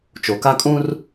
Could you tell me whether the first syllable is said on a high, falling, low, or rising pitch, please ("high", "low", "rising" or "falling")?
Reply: low